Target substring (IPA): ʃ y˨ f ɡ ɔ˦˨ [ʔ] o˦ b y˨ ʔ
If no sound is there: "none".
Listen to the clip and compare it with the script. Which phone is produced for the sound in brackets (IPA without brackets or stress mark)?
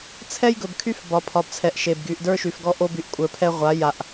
ʔ